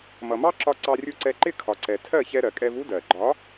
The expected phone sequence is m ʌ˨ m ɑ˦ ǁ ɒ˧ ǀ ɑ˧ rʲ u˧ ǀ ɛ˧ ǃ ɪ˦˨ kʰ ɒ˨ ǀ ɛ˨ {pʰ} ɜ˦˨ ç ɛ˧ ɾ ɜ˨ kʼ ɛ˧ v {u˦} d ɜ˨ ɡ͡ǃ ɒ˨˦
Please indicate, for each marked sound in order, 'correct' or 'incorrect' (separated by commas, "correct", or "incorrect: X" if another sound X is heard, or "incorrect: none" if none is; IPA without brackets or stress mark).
incorrect: tʰ, correct